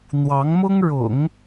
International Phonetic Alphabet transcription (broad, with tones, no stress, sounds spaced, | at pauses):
n̪ w ɑ˧˥ ŋ m ʊ˥ ŋ ɻ ʊ̰˨˩˦ ŋ